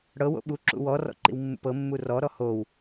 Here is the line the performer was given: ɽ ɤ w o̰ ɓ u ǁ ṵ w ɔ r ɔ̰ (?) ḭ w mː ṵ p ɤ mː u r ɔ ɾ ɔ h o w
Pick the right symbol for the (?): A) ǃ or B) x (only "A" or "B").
A